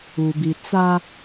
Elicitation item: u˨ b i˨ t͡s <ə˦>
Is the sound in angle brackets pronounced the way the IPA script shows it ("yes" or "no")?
no